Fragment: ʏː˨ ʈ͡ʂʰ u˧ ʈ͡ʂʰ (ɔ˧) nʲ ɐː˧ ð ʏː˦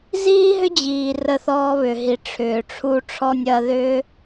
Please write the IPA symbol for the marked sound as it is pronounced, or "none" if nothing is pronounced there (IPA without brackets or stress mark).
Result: ɔ˧